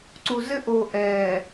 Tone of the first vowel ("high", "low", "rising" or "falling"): low